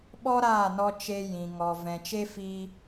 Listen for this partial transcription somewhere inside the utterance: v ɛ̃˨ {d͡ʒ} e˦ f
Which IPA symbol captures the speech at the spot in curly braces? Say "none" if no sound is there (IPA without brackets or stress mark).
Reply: t͡ʃ